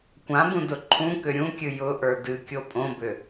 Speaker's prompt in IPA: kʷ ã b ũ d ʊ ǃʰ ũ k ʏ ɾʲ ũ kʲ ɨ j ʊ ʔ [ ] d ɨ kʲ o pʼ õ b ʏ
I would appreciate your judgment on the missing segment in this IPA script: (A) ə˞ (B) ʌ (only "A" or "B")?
A